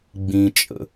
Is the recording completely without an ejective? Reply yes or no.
no